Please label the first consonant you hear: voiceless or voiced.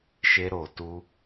voiceless